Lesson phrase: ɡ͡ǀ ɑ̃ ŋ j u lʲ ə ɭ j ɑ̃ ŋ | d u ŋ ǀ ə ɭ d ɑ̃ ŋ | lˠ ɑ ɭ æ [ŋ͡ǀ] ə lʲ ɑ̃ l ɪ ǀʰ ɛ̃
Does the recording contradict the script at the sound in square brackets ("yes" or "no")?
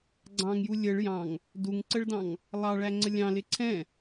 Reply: no